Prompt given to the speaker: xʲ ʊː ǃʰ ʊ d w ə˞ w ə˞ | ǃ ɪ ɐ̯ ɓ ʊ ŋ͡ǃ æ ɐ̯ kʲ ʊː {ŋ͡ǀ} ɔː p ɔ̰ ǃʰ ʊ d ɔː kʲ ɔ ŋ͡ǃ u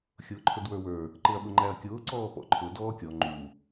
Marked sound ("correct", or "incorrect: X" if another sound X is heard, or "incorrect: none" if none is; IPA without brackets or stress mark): incorrect: ǀ